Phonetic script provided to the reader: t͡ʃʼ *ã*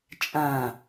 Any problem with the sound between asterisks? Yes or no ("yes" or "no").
no